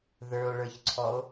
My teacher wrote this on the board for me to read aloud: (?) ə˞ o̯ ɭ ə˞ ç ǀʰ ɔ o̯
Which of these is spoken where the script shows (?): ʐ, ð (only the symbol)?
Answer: ð